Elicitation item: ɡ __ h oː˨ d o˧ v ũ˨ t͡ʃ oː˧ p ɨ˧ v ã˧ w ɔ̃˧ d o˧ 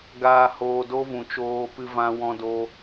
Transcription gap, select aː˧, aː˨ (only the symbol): aː˨